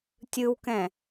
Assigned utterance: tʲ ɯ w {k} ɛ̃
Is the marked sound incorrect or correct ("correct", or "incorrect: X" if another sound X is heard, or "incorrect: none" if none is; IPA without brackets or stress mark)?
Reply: correct